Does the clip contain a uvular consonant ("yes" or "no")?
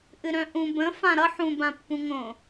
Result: no